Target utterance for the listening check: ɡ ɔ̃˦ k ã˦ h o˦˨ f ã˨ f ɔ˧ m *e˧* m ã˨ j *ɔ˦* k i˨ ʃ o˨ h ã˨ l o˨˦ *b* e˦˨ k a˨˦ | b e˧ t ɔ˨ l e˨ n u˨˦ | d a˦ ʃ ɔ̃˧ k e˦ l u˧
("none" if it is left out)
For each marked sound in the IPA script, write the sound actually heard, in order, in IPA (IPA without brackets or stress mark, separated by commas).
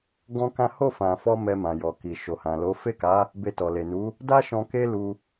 ɛ˧, ɔ˨, f